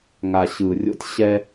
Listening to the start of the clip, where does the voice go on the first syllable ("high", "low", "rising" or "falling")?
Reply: low